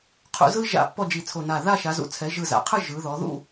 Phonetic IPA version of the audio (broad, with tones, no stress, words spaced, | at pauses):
qʰṵ˧zɯ˥ ʒa̰˧˩ pːɔ˥˧d͡ʒi˧˩t͡sʰo˧˩na˧˩ ða˥˧ʃa˩˧zṵ˩˧ t͡sʰɛ˩˧ʒɯ˧˩za̰˩˧qʰɯ˥˧ ʒɯ˩˧ðɔ˩˧ ðṵ˥˧